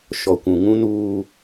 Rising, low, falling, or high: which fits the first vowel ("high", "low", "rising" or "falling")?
low